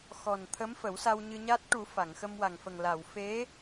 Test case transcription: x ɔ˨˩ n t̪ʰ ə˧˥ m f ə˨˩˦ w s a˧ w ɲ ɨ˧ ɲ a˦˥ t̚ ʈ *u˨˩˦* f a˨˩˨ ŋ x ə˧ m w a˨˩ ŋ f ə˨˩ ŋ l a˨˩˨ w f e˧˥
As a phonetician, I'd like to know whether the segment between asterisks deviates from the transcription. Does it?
no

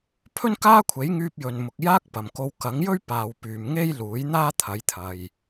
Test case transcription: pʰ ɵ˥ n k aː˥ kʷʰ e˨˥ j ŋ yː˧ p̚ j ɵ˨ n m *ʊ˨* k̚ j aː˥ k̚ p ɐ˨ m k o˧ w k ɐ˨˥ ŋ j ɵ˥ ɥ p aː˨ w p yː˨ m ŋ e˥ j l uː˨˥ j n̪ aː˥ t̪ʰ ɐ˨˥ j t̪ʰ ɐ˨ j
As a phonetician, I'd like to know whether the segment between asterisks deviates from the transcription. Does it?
no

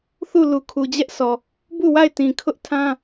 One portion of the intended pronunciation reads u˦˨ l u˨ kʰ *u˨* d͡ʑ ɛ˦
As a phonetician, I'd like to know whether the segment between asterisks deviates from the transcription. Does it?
no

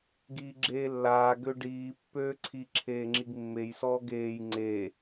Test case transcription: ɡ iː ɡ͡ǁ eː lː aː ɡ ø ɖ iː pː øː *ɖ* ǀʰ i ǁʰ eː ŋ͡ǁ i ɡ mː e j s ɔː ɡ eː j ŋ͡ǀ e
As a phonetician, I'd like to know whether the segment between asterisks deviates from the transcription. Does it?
yes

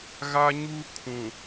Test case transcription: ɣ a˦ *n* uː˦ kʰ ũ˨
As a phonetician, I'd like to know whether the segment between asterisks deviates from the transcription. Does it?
yes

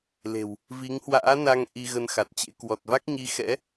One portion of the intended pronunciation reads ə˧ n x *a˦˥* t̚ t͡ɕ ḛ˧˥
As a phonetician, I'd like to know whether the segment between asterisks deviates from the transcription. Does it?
yes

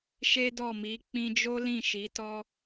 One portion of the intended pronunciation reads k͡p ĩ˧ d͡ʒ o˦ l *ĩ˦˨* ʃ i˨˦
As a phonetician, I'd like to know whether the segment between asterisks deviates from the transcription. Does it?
no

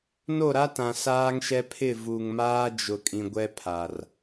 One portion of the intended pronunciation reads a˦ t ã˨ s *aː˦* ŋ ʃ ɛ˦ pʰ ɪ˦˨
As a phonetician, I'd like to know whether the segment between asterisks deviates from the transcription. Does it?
no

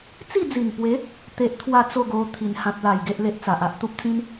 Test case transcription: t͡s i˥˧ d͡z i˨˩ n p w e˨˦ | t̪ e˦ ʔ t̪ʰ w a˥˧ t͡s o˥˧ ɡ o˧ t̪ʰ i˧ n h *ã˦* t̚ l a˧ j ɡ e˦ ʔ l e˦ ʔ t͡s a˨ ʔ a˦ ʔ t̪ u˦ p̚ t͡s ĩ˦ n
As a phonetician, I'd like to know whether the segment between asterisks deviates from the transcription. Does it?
no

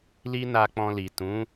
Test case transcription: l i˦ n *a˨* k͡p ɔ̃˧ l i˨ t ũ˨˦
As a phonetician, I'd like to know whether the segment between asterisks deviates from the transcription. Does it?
yes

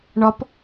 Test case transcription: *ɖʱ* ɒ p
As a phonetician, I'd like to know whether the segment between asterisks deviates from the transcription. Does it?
yes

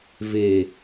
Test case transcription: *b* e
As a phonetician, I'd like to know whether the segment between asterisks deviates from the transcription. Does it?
yes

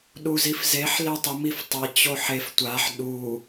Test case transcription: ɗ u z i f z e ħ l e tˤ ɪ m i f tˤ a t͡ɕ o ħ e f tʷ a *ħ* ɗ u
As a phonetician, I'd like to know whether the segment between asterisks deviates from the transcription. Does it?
no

